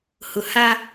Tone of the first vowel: low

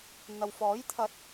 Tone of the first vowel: low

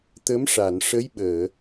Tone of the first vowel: rising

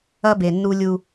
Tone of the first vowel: high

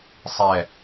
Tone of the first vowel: falling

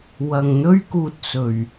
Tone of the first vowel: low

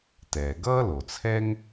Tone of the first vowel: low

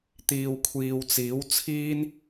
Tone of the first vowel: low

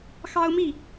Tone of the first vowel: high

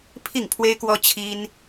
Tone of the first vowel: falling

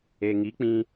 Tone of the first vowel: low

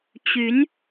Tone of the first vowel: rising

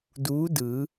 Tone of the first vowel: rising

